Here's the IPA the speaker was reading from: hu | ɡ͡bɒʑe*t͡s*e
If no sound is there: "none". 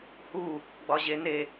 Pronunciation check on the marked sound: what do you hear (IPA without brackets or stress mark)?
n